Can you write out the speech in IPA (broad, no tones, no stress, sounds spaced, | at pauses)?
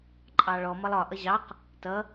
ǃʼ ɑ ɭ ɔ m ʌ lˠ ɒ ʔ ʌ ʑ ɑ q | t ʌ